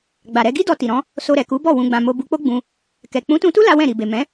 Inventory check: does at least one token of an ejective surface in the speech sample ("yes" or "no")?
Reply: no